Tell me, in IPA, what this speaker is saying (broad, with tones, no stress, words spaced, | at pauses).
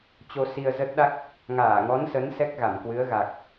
t͡ɕo˧si˧ə̯zə˦˥t̚ɗa˦˥k̚ | ŋaː˧˩ŋɔ˨˦nsə˨˦n sɛ˦˥k̚ɣa˧˩mkwɨ˨˦ə̯ɣa˨˩k̚